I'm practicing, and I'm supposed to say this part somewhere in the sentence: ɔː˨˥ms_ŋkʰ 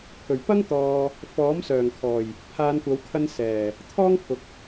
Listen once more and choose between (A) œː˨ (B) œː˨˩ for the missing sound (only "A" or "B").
B